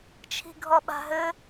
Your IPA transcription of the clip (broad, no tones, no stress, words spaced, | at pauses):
t͡ʃʰi̤ɡʱɔɓa̤ɦɘ